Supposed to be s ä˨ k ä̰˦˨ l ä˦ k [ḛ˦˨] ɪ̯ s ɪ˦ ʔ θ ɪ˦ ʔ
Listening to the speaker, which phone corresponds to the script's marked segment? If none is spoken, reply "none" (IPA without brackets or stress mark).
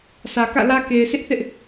e˨